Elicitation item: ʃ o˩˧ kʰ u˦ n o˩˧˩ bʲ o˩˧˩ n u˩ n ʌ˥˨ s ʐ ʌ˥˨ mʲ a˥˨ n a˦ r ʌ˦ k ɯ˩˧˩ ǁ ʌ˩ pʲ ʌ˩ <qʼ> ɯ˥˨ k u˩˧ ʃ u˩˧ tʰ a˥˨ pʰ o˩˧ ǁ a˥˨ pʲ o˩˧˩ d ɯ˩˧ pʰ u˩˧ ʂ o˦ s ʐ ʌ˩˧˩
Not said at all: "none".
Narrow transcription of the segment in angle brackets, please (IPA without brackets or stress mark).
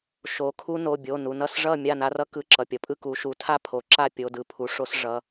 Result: pʼ